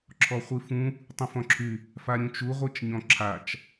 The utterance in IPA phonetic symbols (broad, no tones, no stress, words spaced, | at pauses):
ǁʰɔχʷifũ | tˤĩfɔ̃ǁʰy | faɾʲũt͡ʃu ʁʷit͡ʃɲɔ̃ǁʰat͡ʃ